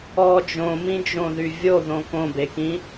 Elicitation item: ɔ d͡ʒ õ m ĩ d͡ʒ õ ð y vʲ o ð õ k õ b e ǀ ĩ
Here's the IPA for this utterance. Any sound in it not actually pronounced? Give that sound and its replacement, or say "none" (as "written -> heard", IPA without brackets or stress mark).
ǀ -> k